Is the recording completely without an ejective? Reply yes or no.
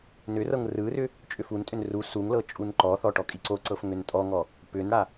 no